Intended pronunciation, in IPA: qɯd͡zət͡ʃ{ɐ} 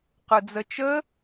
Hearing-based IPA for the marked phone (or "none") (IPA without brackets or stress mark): ə